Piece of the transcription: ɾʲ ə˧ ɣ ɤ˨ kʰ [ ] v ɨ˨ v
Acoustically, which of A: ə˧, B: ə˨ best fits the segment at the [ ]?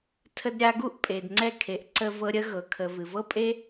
B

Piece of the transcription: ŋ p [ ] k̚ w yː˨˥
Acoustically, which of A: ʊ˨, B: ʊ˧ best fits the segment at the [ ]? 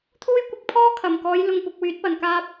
A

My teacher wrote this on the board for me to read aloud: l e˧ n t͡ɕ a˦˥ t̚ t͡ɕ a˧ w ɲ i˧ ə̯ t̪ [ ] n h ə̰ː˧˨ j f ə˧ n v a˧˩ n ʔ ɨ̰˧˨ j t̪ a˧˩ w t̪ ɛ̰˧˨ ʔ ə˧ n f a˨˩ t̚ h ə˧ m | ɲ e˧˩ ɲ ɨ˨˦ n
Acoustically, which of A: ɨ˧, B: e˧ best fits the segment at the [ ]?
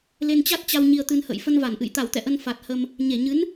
A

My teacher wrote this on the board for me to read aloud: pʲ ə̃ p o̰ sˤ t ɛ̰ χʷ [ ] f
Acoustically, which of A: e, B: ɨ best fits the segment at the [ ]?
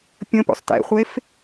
A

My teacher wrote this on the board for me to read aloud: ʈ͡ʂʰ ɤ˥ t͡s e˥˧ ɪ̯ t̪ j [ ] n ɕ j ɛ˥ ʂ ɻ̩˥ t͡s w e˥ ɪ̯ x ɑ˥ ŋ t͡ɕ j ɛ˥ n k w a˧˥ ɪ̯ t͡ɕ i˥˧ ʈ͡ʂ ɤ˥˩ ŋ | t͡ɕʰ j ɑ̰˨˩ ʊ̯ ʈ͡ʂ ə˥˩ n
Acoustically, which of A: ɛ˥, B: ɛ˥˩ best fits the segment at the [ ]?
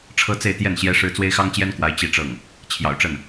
B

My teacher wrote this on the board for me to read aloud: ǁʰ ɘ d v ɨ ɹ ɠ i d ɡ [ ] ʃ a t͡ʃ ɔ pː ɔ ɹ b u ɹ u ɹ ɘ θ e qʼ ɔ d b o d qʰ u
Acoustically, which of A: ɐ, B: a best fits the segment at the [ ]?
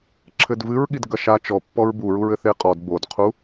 A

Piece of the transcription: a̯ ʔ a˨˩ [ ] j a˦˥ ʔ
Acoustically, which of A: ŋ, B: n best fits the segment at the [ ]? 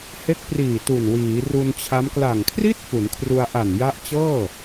B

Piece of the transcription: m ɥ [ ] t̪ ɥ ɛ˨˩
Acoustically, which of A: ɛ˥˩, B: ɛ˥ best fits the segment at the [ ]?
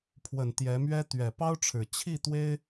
B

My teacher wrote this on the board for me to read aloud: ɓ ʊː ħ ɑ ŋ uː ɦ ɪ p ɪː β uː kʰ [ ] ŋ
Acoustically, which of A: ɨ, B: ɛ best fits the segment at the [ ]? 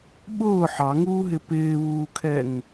B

